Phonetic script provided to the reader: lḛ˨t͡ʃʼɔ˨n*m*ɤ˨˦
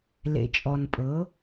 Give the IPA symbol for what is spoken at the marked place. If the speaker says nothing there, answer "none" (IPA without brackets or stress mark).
pʼ